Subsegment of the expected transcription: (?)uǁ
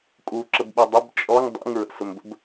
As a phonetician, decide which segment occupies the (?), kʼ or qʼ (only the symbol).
kʼ